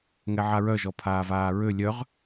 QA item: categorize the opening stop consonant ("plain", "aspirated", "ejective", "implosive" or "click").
aspirated